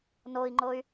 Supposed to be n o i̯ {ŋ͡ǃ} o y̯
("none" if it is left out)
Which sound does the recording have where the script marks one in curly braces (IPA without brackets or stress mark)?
ŋ͡ǃ